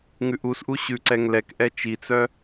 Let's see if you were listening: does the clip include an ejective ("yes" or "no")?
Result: no